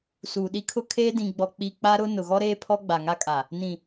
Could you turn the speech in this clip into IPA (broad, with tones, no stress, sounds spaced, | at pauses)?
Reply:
s uː˨ ɗ i˦ kʰ ʊ˦ kʰ eː˦ d ĩ˨ ɡ͡b ɔ˨ k͡p i˨ k͡p a˦ ɾ ʊ˦ n ʊ˨ ɣ ɔ˦ ɾ eː˦ pʰ ɔ˦ ɡ͡b a˨ ŋ a˦ kʼ a˨ | n ĩ˨